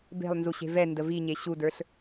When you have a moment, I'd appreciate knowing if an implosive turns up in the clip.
no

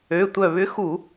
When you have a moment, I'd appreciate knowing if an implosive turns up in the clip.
no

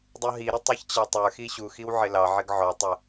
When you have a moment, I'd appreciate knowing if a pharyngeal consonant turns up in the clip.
yes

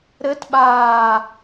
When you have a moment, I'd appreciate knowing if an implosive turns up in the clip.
yes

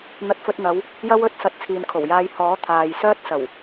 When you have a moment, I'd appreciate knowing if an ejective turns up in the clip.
no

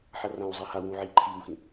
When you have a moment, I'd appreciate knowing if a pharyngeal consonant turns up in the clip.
yes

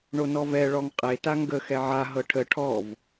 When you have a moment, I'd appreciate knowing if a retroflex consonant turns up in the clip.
yes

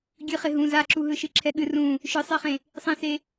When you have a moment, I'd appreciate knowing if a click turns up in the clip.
yes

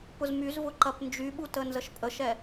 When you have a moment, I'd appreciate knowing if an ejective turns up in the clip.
yes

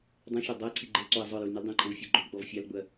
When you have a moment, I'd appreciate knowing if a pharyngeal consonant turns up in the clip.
no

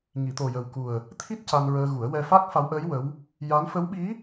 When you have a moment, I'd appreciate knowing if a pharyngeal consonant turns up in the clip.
no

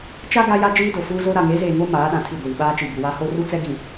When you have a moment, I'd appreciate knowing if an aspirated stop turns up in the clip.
yes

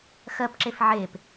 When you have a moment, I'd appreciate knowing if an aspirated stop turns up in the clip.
no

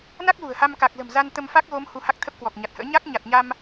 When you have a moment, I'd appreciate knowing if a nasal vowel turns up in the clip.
no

